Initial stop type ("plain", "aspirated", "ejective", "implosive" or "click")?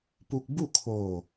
plain